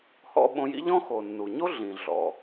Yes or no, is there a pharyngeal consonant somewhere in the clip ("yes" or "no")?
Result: no